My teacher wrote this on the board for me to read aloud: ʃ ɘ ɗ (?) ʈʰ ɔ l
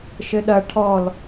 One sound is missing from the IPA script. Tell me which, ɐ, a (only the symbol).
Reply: ɐ